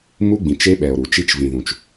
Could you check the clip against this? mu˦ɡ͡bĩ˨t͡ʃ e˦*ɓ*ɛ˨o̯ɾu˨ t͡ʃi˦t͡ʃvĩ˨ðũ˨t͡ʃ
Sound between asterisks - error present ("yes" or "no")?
no